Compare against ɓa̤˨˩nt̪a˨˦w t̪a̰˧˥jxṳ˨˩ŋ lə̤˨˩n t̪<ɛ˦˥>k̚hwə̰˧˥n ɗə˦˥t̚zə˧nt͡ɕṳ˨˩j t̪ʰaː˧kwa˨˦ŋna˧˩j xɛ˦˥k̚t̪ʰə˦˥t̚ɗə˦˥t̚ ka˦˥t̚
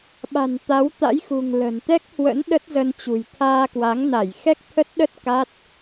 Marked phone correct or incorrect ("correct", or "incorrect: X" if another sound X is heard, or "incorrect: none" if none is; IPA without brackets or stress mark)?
correct